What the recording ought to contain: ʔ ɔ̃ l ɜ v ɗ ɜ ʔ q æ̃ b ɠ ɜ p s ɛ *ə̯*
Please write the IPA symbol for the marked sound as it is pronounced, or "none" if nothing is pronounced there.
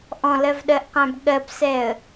ə̯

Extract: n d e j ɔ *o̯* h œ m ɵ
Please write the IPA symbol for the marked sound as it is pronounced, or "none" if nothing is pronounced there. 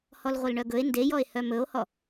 e̯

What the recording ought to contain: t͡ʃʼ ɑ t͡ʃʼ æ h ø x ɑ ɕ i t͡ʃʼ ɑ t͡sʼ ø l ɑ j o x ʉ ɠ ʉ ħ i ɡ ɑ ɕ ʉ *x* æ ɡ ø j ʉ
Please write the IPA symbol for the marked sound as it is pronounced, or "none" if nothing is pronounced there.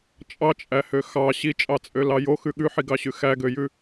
x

